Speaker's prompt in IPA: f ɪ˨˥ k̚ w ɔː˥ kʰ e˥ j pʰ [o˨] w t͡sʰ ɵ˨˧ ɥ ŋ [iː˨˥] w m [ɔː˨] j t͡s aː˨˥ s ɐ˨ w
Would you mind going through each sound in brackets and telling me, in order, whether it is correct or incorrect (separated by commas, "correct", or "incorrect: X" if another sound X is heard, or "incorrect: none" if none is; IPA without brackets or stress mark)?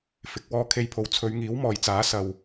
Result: correct, correct, correct